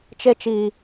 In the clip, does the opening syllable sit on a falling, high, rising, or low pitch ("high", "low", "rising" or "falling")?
high